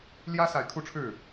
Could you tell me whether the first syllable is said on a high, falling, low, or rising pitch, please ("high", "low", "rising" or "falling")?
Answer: high